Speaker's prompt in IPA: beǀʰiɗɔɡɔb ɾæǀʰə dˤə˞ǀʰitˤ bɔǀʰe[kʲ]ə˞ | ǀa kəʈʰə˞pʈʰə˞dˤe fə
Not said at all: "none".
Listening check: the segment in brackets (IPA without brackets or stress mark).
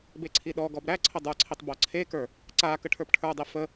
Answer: k